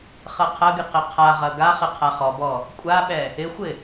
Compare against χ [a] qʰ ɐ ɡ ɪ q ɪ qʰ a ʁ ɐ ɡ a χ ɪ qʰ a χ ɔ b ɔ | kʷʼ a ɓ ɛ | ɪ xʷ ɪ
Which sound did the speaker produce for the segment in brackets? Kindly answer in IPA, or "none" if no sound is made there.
ɐ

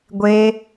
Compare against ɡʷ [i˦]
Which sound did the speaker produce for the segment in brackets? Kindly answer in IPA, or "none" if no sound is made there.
e˦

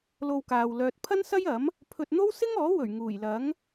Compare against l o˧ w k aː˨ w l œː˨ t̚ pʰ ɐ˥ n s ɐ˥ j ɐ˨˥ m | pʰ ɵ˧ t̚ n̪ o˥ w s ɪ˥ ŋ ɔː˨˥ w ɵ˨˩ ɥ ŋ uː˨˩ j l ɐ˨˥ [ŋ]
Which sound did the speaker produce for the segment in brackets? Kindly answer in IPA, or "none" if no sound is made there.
ŋ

